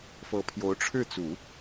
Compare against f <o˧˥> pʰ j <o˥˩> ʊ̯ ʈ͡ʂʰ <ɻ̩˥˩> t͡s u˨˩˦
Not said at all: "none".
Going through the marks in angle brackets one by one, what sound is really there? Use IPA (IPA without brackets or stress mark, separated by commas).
ɤ˧˥, o˧˥, ɻ̩˥˩